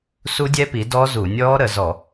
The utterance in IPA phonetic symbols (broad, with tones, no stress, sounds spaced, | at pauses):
s u˦˥ dʲ ɛ˦˥ p i˩˥ d ɔː˦˥ z u˧˩˧ nʲ ɔː˦˥ ɾ ə˧˩˧ z ɔ˧˩˧